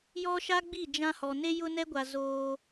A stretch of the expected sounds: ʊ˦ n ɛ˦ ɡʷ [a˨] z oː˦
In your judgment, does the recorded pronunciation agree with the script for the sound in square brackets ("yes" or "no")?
yes